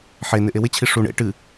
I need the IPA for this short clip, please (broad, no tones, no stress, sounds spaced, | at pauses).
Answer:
ħ e n ɪ ʔ e w ɪ t͡ɕʰ i ʂ u ɳ ḛ ʈ ɨ